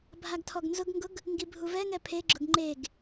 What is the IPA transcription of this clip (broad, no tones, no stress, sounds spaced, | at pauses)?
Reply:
bʱ a ɡ tʰ ɔ ɡ n z ʊ ɡ ŋ ɡ ʊ ɡ | ŋ ɡ i bʱ u v ɛ ŋ ɛ pʰ e ɡ͡ǁ ʊ ɡ ŋ͡ǃ e ɡ